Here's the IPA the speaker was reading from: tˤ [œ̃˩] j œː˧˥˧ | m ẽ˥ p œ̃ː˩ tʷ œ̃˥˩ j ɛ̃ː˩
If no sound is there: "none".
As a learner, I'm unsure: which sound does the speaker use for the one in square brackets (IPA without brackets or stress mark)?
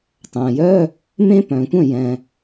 œ̃ː˩